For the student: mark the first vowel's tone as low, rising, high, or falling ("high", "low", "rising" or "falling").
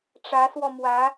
rising